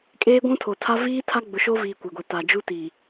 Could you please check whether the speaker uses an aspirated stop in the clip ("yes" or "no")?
yes